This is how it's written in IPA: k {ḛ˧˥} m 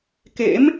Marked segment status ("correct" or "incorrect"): correct